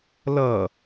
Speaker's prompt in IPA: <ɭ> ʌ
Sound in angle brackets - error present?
yes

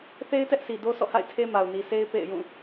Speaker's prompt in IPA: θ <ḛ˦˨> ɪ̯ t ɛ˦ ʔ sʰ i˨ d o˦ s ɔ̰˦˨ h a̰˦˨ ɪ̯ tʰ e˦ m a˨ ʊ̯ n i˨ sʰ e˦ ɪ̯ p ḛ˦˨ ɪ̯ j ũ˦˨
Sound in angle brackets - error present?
yes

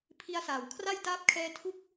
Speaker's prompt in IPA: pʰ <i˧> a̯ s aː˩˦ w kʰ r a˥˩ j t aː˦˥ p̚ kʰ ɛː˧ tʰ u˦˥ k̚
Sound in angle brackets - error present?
no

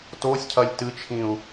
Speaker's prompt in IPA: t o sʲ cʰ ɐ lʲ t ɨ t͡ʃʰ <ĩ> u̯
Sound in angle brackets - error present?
no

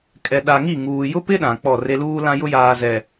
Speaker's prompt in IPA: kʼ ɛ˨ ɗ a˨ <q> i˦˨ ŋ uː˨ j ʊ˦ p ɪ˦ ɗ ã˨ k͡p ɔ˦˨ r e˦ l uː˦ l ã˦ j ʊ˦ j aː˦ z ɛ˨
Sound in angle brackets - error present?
yes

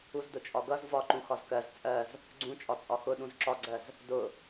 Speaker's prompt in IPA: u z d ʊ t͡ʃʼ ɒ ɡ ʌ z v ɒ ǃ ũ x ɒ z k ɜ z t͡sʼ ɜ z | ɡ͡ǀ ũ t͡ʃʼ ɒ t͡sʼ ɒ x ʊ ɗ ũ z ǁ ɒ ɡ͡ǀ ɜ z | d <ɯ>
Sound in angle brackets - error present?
yes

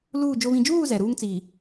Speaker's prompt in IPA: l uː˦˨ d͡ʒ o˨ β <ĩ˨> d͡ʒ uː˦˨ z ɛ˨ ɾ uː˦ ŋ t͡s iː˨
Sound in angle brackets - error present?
no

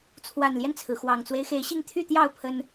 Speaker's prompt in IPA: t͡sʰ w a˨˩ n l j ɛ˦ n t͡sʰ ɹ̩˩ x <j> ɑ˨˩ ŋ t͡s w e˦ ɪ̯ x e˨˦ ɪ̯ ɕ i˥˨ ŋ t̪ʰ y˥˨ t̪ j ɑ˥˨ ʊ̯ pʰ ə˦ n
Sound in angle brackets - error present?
yes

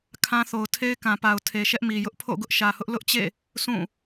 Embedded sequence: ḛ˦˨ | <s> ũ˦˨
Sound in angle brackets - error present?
no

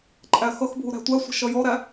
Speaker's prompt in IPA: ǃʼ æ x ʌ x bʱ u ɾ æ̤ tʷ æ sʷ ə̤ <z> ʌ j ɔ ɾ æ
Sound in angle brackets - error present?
yes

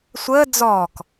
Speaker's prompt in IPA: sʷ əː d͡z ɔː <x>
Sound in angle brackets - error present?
yes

